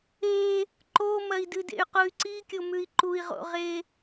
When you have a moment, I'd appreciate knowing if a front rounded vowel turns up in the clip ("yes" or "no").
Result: yes